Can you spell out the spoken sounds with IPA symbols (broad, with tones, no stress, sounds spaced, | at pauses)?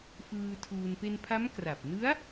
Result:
f ɯː˧ tʰ uː˧ n p e˧ n pʰ a˦˥ m k r a˨˩ p̚ n ɯ˦˥ a̯